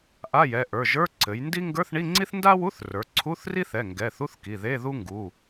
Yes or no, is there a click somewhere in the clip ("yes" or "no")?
yes